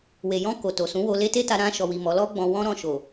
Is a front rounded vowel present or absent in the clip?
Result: absent